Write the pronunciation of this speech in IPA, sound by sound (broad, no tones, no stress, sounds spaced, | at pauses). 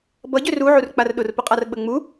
b ʌ ɟ ø r u ʕ u r k͡p a r ɗ ʊ r p ʊ qʼ a r ɓ ə ŋ͡m u